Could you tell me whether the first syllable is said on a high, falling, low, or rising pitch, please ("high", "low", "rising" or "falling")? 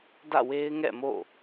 falling